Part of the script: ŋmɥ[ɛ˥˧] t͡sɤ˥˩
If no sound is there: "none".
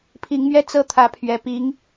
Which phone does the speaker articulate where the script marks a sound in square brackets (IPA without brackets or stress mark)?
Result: ɛ˥˧